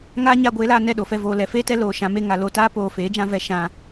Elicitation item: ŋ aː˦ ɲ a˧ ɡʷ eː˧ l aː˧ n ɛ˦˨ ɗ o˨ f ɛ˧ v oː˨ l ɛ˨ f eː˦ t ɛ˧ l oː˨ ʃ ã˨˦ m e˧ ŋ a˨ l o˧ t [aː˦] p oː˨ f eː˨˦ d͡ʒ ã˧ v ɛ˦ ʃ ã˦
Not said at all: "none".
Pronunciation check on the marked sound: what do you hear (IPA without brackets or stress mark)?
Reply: aː˦